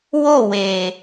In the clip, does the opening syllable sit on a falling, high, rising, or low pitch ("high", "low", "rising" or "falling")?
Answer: falling